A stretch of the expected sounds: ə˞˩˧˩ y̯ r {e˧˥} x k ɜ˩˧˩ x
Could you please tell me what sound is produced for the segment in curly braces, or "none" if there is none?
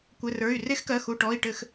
e˧˥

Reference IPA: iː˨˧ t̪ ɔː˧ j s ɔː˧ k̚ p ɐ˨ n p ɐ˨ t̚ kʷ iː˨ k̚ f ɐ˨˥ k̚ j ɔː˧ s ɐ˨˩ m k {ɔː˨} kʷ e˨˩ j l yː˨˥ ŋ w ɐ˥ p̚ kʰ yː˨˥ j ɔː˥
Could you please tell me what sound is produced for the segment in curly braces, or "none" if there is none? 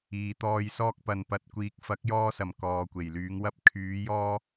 ɔː˨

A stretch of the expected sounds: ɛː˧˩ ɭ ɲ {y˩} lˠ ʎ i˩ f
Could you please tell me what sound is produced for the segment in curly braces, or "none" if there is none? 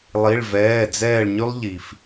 y˧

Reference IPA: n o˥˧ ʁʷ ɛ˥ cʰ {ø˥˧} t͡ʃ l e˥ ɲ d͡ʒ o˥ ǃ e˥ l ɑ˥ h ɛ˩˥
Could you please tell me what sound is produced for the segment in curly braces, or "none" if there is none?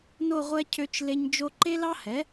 ø˥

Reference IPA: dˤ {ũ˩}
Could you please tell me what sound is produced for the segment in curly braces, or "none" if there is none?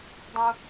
ũ˩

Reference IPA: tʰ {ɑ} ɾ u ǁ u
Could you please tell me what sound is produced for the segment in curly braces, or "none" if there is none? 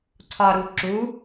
ɒ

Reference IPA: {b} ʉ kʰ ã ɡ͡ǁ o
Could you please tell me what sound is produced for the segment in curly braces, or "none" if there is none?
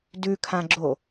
d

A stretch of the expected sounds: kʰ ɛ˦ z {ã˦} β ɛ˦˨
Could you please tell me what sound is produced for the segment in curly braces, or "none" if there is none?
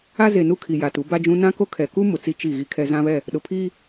ã˦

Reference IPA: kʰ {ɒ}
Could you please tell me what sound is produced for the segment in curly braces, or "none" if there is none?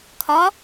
ɒ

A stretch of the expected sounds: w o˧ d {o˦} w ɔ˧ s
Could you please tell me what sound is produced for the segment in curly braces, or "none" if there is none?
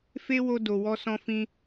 o˨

